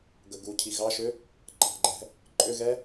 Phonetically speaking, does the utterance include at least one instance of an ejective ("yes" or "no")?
yes